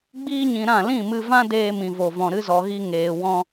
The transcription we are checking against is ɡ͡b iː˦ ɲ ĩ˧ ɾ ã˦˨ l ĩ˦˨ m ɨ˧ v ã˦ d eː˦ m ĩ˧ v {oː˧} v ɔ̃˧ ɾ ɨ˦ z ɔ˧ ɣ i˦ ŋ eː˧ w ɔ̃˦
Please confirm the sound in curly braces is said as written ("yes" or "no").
no